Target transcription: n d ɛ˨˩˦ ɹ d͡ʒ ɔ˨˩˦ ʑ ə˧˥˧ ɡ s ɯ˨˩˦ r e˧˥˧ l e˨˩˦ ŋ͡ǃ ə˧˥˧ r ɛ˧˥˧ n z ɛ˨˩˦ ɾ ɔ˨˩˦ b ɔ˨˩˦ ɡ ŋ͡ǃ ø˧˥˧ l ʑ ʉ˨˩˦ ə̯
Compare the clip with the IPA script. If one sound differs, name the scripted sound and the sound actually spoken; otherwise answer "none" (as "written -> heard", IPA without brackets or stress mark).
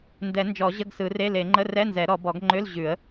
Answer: ɹ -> n